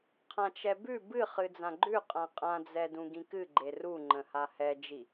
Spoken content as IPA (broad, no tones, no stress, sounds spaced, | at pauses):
qʰ ã t͡ʃ ɛ b ʉ b ɨ χ ɨ d͡z ã ɡ͡ǃ ʉ qʼ ã qʼ ã d͡z ɛ d ũ ɡ ĩ k ɨ ɡ͡ǃ e r u ŋ͡ǃ ə̃ h a h ɛ d͡ʒ i